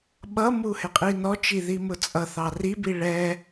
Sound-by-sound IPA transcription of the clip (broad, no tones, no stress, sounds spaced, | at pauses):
ɓ ʌ m u h ɪ qʼ i n ɔ t͡ʃ i ð i m ʊ t͡sʼ ʌ θ ɑ r i b i ɭ ɛ